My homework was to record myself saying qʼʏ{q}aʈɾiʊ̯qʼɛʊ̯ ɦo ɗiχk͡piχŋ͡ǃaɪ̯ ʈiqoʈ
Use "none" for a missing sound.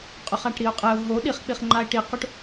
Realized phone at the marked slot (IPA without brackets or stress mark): χ